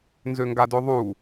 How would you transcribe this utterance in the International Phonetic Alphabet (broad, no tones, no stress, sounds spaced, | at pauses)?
n z ø ŋ ɡ a d ø ðˤ u